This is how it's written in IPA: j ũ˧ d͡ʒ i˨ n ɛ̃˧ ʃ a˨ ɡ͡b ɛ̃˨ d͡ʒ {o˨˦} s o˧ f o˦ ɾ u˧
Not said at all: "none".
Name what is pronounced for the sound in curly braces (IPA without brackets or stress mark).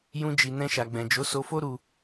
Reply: o˨˦